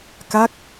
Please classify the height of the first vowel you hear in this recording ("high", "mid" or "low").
low